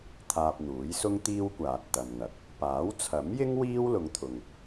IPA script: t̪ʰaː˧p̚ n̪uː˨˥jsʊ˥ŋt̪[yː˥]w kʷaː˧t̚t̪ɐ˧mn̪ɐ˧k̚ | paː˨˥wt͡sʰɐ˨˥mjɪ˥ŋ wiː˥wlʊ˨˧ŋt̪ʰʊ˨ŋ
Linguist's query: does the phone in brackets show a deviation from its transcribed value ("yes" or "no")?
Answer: yes